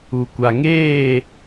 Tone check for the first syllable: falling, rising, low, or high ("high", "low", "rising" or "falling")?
low